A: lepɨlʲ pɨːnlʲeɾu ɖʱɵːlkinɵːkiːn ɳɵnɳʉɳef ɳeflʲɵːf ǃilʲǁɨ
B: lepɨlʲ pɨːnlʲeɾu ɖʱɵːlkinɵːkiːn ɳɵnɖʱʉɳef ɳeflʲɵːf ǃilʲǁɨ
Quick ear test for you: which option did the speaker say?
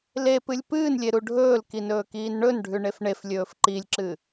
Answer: B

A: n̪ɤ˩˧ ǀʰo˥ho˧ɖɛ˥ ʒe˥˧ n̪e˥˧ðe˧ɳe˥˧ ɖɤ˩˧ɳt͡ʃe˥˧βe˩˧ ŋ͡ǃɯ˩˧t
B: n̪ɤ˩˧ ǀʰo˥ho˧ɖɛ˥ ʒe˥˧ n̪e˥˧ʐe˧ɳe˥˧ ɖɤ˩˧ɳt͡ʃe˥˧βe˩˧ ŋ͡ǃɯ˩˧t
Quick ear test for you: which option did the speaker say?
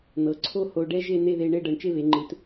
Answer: A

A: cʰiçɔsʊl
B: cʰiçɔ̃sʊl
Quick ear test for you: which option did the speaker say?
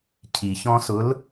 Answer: B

